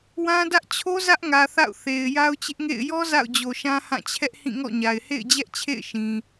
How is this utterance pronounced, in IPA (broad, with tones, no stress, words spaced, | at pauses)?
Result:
wã˦dä˦ʔ t͡ɕʰo˦ zä˦ʔŋä˨ θa̰˦˨ʊ̯ θe˨ɪ̯ ja˦ʊ̯t͡ɕɪ˦ʔŋḛ˦˨ɪ̯ jɔ˦ za̰˦˨ʊ̯d͡ʑo˨ʃã˦ hã˦˨t͡ɕʰɛ˦ʔ hĩ˦˨ŋɔ̰˦˨ɲa˨ɪ̯ hḛ˦˨ɪ̯d͡ʑɛ˦ʔt͡ɕʰḛ˦˨ɪ̯ʃĩ˨